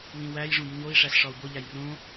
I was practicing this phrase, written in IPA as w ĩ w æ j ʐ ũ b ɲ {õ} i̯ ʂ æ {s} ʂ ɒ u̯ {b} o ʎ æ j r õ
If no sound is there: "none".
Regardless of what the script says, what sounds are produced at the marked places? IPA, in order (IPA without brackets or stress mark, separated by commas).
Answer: o, s, b